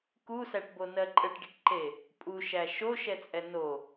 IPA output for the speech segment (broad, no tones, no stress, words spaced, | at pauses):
kusæʈbonɜ ǃʼəʈɖɪʈǃe | pʼuʃæ ʃoʃɛt͡sʼɛ no